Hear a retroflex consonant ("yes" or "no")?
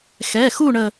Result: yes